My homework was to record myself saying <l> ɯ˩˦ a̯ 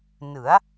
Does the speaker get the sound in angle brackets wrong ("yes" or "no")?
yes